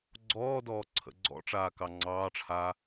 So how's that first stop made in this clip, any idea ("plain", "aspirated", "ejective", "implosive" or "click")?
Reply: click